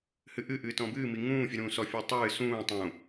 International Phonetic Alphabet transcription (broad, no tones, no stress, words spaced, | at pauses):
hɨʔɨ ʔɨːtɔ̃bɨː miŋũː fʲɨɾũːsɔ fʲɨːtˤɨː sũː tˤũ